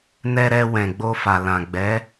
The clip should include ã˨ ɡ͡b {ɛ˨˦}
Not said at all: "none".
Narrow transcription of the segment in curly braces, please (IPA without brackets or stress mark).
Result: ɛ˨˦